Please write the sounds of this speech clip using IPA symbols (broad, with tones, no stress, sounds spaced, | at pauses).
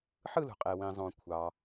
ħ ɯ˦˨ l ṳ˩ qʼ e˩ w ĩ˩ zˤ õ˩ kʷʰ ɑ˩